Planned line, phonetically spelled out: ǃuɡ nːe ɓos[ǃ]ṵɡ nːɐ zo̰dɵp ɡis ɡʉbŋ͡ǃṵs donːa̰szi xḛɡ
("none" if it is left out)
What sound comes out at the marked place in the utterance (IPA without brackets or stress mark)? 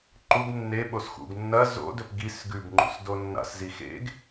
x